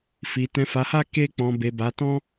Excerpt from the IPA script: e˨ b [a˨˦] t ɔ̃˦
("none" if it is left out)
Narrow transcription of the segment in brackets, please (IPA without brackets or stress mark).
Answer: a˨˦